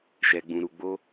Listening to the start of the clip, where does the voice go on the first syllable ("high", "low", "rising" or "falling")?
low